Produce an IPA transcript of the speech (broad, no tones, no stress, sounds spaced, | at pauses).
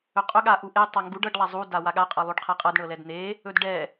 ɵ qʼ ɵ ɠ a ʔ u ʔ e tˤ a ŋ ɡ u ɖ ɤ ɖ lˠ a zˤ u d a w a ɠ a qʼ ɤ lˠ u ɖ qʰ e qʼ ɤ d ɳ ɤ l ɛ d n̪ e | ɵ d ɖ ɛ